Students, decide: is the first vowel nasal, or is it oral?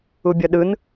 oral